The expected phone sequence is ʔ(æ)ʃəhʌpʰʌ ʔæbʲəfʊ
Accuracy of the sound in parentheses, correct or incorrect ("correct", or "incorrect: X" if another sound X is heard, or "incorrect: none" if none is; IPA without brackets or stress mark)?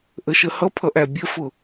incorrect: ə